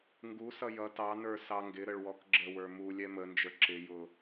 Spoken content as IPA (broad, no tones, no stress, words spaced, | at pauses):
ŋɡusʌ jʌ tɑnə˞ sɑŋɡɪɾəɭ wɔkɡ͡ǁəwə˞ mu lʲɛmənd͡ʒə˞ ǁɪjʊ